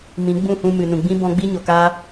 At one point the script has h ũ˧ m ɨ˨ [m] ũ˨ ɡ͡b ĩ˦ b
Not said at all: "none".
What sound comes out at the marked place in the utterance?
n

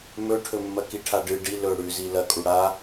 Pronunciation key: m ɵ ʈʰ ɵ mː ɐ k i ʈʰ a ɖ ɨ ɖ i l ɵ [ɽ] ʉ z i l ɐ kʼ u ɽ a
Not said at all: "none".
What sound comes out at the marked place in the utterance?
ɽ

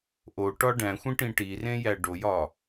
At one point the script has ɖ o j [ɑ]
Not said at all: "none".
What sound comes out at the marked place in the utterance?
ɒ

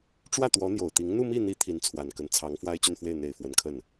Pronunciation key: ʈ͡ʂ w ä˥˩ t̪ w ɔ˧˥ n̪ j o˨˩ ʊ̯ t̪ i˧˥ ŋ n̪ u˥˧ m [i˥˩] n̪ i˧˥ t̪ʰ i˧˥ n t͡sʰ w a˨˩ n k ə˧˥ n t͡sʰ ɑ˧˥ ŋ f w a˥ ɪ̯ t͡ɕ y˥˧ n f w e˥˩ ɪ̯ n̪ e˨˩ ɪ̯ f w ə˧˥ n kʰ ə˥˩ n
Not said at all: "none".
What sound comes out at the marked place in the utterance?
i˥˩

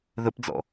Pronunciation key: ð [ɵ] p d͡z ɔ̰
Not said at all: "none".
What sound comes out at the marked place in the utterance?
ɵ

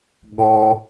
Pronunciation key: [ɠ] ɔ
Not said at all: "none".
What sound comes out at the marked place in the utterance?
ɠ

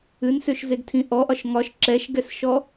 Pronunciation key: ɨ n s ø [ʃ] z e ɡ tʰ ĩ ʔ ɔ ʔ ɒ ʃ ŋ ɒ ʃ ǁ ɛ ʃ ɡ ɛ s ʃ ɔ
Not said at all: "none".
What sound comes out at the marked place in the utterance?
ʃ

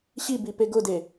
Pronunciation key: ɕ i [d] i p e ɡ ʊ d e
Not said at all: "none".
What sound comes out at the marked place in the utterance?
b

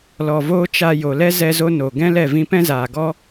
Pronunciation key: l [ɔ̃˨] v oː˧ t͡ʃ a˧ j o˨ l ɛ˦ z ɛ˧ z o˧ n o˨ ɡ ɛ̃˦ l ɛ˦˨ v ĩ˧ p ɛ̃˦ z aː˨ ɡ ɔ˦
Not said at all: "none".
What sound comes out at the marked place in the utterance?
ɔ˨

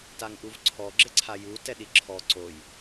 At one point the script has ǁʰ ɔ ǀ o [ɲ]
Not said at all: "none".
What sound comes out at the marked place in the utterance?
j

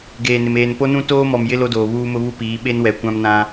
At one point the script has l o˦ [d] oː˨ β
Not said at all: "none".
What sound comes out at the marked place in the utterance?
d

